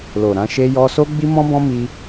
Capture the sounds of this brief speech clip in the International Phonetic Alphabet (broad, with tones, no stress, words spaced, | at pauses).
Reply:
lo˨ɾã˧ ʃe˧jɔ˧so˦ ɡ͡bi˦mɔ̃˦bɔ̃˦mi˧